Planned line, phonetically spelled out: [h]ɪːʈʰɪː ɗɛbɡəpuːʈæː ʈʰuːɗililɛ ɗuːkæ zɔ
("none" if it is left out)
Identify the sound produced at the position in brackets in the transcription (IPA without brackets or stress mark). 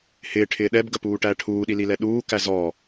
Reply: h